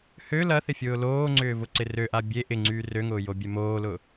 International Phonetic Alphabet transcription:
hø lɐθɪfʲʊː loːŋ͡ǀʏːvʊǀɪ røʔa bʲe ʔɪŋ͡ǀyː røŋʊːjobʲɛ moːlʊ

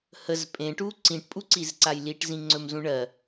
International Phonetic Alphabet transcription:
həz pʼẽʈu ǀĩʈpʼuǀizǀaj liʈzĩŋ͡ǀɵmzũ ɳɜ

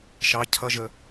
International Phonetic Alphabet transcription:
ʃɑ cʰʌʒə

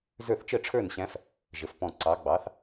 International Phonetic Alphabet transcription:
zə˞˥˨θ t͡ʃə˥˨ʈ͡ʂʰə˞˥˨nɕæ̃˧˥f | ʒə˩˧fpɔ̃˨˩ ǀɑ˩˧ ɡ͡bɑ˩˧θ

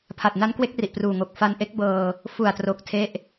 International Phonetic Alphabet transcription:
pʰa˨˩t̚na˦˥nkwe˦˥k̚ ri˨˩ʔpruː˨˩ŋo˨˩k̚ fa˧nʔe˦˥k̚bɤː˧ | fu˨˩a̯tro˨˩k̚ tʰe˥˩ʔ

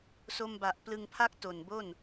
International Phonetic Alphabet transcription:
so˧mba˨˩ʔplɯ˧ŋpʰa˥˩k̚ to˨˩nbo˥˩n

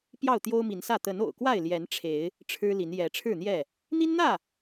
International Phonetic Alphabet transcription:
pjɑ˥˨ʊ̯t̪jo˦ʊ̯mi˨˦nsä˥˨ t̪ə˨˦no̰˨˩ʊ̯kwa˥˨ɪ̯ ljɛ˨˦nʈ͡ʂʰe˨˦ɪ̯ | ʈ͡ʂʰɻ̩˦li˨˦n jɛ˨˦ʈ͡ʂʰɻ̩˥˨n̪jɛ˥˨ | n̪i˦nn̪ä˥˨

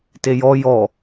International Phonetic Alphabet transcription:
tejɔ jɔ

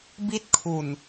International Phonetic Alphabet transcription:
bi˥˩t̚kʰu˨˩n

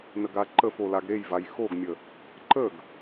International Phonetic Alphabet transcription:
nəɡaǃəfo laɡɾejvaj xoɡmʲə | ǃəɡ

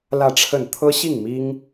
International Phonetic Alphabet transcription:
lä˥˧ʈ͡ʂʰə˥˩n t̪ʰɤ˥ɕi˥˩ŋmi˥ŋ

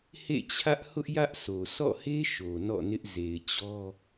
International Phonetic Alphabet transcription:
hḛ˦˨t͡ɕʰä˦ʔ hʊ˦ʔjä˦ʔso˨ sɔ̰˦˨he˦ ʃo˨ nɔ̰˦˨nɪ˦ʔ ze˨ɪ̯t͡ɕɔ˦

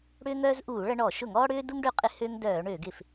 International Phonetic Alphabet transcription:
ɽʏː˦ŋœː˦zʔuː˧˩˧ ɭɐ˦ɳɔ˧˩˧ ʃʊ˧˩˧ŋɔː˦ɽʏː˦du˦ŋ ɖø˦qʼɪ˦ hø˦ŋ dœː˧˩˧ɳø˧˩˧ɡɪ˧˩˧f

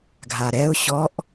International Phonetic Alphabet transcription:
ɡʱaɾɛʊ̯ ɕɔʔ

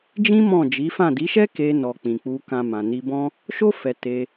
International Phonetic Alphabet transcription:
d͡ʒĩ˦ mɔ̃˦˨ d͡ʒi˨˦fã˦˨ di˨˦ʃɛ˦ ke˧nɔ˨ k͡pĩ˨k͡pu˧ kã˨ mã˨ni˧bɔ̃˦ | ʃo˦ fɛ˧te˧

